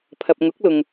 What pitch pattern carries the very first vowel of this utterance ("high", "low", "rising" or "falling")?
low